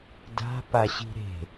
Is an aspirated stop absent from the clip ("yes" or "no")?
yes